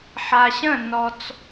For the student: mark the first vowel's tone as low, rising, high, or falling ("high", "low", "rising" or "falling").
low